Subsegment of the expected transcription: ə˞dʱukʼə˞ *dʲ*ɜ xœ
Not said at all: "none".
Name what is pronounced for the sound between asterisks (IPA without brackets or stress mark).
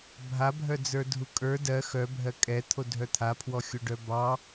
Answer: d